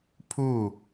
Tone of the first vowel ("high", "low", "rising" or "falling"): falling